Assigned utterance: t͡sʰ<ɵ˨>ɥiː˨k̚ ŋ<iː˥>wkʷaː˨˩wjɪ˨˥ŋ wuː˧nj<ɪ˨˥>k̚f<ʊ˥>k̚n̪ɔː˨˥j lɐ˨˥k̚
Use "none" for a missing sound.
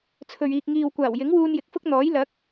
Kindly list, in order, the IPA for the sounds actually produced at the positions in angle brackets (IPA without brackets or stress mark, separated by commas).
ɵ˨, iː˨, ɪ˨˥, ʊ˥